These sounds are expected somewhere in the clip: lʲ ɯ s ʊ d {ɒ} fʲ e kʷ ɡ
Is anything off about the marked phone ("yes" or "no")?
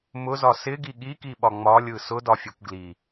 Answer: no